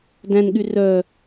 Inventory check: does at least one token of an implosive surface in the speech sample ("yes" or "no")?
yes